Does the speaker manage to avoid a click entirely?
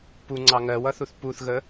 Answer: no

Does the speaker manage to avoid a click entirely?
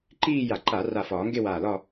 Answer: no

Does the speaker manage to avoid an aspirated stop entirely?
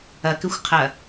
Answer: no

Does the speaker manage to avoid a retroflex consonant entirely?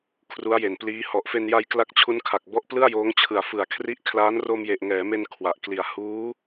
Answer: yes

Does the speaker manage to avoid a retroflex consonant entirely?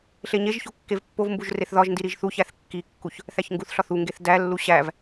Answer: yes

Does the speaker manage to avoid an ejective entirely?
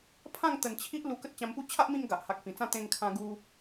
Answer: yes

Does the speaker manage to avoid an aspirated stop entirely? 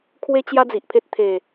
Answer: no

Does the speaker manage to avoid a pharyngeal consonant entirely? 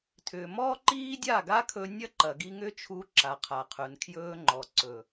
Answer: yes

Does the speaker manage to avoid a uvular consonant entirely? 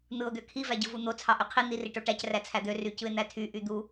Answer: no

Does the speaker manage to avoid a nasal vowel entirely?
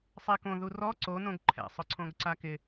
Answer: no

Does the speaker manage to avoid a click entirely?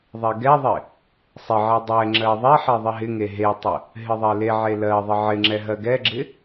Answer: no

